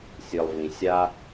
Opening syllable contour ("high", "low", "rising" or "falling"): low